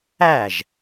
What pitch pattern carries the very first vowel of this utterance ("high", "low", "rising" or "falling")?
falling